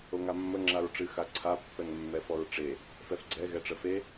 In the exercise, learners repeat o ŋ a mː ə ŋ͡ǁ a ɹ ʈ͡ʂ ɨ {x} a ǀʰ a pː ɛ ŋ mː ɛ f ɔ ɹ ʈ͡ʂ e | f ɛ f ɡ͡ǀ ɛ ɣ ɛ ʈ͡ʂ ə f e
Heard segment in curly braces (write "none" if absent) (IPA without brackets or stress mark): x